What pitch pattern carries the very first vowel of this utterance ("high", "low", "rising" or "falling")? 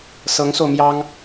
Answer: rising